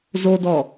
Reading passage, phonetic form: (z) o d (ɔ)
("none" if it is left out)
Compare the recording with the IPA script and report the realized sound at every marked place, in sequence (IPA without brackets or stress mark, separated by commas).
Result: z, ɔ